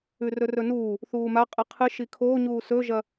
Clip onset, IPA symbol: ʉ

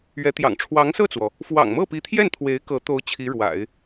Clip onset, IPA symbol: ɥ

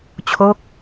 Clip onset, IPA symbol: t͡ɕʰ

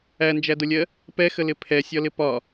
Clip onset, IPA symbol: æ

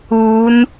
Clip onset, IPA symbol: uː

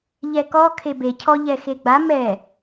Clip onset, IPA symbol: ʎ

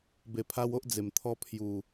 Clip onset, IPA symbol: b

